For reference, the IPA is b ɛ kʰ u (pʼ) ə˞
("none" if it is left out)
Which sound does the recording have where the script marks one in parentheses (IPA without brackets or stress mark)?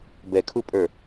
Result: pʼ